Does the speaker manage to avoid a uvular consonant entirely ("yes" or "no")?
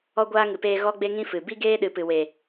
yes